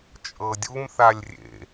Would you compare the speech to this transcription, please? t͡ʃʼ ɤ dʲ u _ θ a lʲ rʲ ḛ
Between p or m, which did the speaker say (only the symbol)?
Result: m